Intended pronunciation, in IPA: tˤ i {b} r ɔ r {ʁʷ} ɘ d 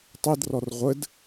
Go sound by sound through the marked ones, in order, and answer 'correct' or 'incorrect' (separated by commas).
incorrect, correct